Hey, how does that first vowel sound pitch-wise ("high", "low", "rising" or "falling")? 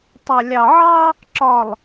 low